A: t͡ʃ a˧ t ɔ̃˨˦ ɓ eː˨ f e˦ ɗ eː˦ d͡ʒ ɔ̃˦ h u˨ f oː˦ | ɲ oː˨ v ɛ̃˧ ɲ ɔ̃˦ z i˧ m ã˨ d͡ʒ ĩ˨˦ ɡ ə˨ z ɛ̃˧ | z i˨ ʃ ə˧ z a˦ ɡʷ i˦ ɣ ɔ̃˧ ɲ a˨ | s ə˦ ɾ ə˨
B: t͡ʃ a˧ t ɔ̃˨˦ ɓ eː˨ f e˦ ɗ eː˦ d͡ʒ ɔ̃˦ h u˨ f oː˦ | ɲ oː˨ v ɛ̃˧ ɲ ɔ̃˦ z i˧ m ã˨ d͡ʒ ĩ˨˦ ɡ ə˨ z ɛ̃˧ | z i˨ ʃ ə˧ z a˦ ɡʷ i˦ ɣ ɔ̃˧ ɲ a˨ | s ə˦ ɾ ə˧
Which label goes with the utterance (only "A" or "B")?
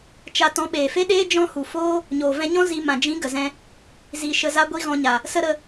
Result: B